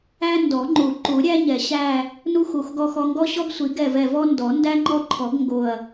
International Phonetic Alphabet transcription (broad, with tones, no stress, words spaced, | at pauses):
æ˦ndɔ˨˩˦ ŋ͡ǃu˨˩˦ǃu˨˩˦ɾʲæ˦ ɲɛ˨˩˦ɕæ˦˨ | nu˦ xu˨˩˦x ɡɔ˦xɔ˦ ŋɡɔ˦ɕɔ˦ɡsʷi˨˩˦ ɡɛ˦˨vɛ˦˨ vɔ˦ ndɔ˨˩˦ndæ˦ŋ͡ǃɔ˦˨ǃʰɔ˨˩˦ɡ ŋɡo˦˨ɐ̯